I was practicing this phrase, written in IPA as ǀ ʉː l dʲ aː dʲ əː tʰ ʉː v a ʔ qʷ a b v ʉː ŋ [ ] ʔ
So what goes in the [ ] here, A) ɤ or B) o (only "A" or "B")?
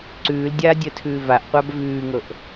A